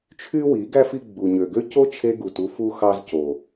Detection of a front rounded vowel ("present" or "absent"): present